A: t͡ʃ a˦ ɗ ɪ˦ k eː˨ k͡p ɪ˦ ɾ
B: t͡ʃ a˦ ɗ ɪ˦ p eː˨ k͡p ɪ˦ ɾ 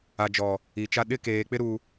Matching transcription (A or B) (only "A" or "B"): A